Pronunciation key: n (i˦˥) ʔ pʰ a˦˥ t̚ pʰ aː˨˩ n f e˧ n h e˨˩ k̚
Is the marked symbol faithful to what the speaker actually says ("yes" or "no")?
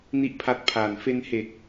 no